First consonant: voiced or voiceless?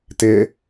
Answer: voiceless